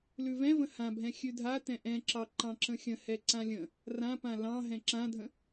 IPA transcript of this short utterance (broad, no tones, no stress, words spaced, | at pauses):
lʉvɛ̃və̃ hãbʱɛ̃ xʲʉdʱatɛ̃ ʔɛ̃ǁɑ ǃɑ̃ǁə̃xʲə̃ hɛǀãlʲə̃ | rãpã lɑ̃ ɦɛ̃ǁãdʱə̃